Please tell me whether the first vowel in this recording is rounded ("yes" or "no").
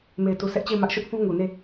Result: no